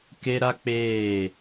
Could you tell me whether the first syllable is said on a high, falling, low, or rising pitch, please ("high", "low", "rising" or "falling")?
high